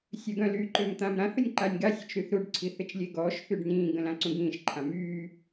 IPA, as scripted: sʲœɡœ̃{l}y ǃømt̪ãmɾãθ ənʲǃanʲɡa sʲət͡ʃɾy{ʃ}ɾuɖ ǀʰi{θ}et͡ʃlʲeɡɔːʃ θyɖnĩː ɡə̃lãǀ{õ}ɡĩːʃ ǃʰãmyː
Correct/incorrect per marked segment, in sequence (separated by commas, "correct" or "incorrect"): correct, incorrect, correct, incorrect